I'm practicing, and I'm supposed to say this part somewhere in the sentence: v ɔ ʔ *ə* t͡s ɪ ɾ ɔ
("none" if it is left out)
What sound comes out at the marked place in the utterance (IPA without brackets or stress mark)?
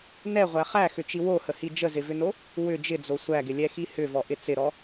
ɪ